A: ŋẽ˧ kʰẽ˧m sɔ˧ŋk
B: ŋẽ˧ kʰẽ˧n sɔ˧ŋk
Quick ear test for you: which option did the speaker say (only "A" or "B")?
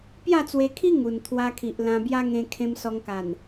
A